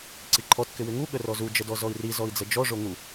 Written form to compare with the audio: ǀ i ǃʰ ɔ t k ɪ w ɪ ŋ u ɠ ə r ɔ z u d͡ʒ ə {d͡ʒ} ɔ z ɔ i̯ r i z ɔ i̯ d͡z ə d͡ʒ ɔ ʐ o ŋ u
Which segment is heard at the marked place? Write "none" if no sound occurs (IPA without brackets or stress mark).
d